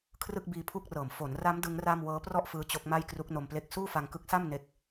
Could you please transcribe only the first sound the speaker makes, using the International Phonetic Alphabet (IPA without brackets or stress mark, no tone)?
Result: kʰ